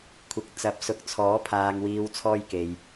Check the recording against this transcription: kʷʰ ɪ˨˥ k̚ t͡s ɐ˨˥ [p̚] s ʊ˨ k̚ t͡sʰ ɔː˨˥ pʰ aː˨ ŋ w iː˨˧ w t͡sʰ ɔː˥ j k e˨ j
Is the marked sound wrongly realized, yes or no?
no